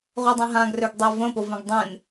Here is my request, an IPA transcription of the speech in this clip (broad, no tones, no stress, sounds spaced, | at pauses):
ʁʷ e dˤ ẽ ɦ ã ɡ r ø ɡ dˤ e v ə̃ p o v ẽ ɡ dˤ ẽ n